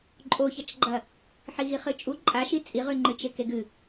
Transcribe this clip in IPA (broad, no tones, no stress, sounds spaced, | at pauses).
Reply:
ǃʼ o ç ɐ t͡ʃ ɡ͡ǃ ɐ | ħ i ɣ i χ ɨ t͡ʃʼ u ǃʼ a ʃ i t͡sʼ i ʁ ʉ ŋ͡ǃ ɨ t͡ʃ e k e ɡ ɨ